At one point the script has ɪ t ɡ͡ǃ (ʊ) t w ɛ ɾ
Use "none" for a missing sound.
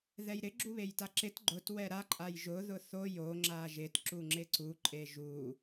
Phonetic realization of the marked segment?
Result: ʊ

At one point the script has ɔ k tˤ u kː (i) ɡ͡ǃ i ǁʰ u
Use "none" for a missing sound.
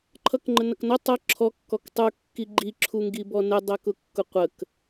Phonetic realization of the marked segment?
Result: i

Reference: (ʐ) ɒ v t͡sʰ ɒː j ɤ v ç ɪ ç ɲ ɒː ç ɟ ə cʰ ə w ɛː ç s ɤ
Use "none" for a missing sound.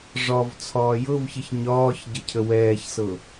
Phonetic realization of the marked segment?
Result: ʐ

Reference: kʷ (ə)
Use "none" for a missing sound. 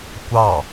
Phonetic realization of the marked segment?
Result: ɑ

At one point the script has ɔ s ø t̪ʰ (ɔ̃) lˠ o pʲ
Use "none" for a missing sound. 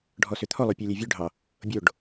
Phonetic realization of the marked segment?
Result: ɔ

